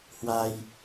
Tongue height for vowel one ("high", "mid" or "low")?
low